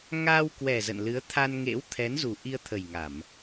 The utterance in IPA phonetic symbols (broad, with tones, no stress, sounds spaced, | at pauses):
ŋ aː˧ w k w ɛ˨˩ z ə̰˧˨ n l ɨ˨˦ ə̯ t̪ʰ a˧ n ŋ ḛ˧˥ w t̪ʰ ɛ˨˦ n z u˨˩ ʔ i˧ ə̯ t̪ʰ ə˨˩ j ŋ a˧˩˨ m